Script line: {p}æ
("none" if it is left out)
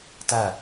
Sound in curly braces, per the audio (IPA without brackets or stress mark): t